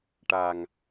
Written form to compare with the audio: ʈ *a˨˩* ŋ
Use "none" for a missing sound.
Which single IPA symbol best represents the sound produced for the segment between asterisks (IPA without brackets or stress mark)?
a˨˩